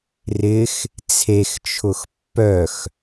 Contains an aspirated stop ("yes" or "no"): yes